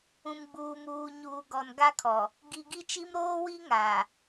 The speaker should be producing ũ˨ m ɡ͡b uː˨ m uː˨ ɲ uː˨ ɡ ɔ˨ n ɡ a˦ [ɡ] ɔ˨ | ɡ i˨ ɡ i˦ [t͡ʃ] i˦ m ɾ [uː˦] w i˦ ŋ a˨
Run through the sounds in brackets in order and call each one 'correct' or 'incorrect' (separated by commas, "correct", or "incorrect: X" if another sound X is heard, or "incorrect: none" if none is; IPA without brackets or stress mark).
incorrect: kʰ, correct, incorrect: oː˦